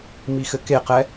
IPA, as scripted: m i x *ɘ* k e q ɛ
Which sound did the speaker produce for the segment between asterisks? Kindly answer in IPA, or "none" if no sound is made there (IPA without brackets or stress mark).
ɘ